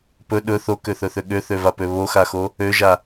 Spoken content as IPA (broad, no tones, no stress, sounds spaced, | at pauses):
p ɵ ɗ ɵ θ o k ø θ ɵ θ ø ɠ ø θ ø v a p ø β o x a x o | ø ʒ a